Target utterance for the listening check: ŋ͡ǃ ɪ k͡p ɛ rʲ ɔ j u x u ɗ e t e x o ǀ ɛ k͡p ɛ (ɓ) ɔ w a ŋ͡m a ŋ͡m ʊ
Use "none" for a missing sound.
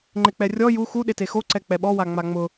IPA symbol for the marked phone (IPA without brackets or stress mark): ɓ